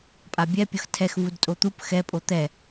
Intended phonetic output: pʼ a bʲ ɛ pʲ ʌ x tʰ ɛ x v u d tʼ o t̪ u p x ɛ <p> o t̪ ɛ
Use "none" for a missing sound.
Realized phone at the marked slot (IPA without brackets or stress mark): pʼ